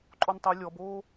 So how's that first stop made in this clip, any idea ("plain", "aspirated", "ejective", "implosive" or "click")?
click